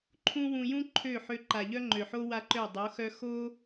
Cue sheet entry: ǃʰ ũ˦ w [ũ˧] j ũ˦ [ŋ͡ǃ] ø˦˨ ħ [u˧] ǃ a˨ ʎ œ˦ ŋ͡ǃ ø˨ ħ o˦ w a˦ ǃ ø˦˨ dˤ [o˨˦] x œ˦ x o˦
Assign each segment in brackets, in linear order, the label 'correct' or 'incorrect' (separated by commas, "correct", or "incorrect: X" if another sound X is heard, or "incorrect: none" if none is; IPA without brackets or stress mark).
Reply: correct, incorrect: ǃʰ, incorrect: ø˧, correct